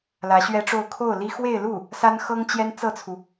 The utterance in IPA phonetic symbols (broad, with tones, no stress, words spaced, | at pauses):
lä˧˥ɕɥɛ˥ʈ͡ʂo˥˧ʊ̯ kʰo˥˩ʊ̯li˥ xwe˥˧ɪ̯lu˥˩ | sa˥nxɤ˥ŋ t͡ɕjɛ˥nt͡sɤ˥˩t͡sʰu˩